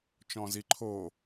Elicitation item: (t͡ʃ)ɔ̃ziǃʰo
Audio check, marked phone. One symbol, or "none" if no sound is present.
t͡ʃ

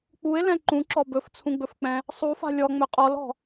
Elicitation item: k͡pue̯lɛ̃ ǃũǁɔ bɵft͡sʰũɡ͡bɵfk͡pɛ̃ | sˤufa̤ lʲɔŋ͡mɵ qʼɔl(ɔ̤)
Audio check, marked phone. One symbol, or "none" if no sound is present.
ɔ̤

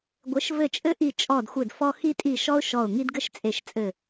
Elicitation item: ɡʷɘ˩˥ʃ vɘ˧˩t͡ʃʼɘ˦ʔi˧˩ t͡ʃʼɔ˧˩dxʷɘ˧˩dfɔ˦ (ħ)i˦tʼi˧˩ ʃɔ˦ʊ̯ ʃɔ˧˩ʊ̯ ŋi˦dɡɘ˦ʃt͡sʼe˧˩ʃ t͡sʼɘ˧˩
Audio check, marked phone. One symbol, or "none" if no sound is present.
x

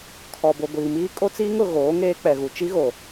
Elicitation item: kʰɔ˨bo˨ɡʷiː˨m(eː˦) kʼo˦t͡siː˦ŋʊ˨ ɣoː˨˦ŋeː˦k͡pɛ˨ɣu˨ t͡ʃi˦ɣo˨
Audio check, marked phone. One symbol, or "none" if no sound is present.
iː˦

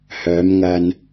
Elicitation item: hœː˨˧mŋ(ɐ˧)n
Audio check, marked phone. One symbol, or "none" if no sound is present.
ɐ˧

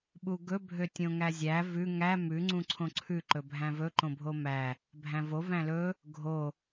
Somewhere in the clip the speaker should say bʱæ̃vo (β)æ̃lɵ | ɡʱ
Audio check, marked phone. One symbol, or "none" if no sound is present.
v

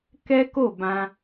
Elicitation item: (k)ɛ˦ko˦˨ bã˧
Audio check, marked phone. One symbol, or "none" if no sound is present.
k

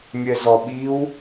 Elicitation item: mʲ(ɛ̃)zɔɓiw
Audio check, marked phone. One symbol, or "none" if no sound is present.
ɛ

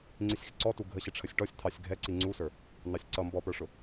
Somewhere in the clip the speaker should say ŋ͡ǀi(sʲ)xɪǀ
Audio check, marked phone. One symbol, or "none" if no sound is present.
sʲ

